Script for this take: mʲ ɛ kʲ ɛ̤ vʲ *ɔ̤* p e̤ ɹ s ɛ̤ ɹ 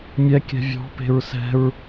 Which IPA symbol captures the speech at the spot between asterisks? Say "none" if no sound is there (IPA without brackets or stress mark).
ɔ̤